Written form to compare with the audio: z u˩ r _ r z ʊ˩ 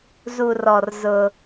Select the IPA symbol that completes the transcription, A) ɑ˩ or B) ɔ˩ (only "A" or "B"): B